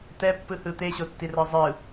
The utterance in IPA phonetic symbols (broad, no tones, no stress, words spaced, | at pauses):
t̪ɛpːɯhɯ t̪eɕotːirɤ zˤɯ